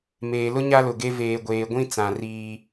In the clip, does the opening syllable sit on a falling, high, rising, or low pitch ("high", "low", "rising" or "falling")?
low